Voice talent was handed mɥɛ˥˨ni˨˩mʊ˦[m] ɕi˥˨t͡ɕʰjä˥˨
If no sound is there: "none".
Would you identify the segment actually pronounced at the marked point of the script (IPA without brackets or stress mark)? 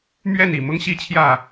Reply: ŋ